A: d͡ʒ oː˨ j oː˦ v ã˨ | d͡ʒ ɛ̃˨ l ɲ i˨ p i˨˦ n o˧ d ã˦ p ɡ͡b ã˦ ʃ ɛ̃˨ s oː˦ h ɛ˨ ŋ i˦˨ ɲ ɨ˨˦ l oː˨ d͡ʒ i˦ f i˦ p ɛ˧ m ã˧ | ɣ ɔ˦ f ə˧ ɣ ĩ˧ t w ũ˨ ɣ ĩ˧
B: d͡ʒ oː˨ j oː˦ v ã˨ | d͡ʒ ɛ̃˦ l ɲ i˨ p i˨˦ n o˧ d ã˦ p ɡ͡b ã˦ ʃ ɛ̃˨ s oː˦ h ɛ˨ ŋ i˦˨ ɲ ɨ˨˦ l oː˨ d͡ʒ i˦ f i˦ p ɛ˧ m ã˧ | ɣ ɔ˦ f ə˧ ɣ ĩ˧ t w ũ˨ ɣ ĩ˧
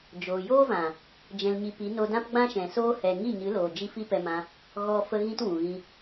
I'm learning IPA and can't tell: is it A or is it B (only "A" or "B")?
A